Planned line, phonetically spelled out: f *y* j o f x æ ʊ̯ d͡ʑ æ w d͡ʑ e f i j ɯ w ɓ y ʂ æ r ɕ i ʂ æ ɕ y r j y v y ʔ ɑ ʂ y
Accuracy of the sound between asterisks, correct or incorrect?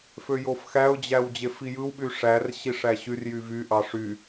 incorrect